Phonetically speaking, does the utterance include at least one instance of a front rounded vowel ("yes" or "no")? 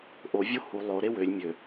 yes